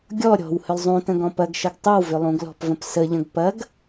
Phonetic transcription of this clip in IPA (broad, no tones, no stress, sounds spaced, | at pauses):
ɡʲ ɔ ɾʲ ɔ̤ w h ʏ lˠ zˤ ũ t ə̃ ɡ ɔ̃ p ɐ ɡ ʃ ə ɡ tˤ ɵ w v ʏ lˠ ũ ɡ l ɔ̤ p v ə̃ p s ə ʎ ə̃ ɡ p ɐ ɡ